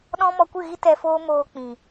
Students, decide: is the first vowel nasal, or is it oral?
nasal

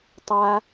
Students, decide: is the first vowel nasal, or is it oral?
oral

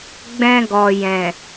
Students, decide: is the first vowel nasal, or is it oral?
nasal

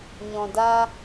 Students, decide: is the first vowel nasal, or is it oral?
nasal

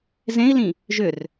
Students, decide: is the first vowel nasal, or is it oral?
nasal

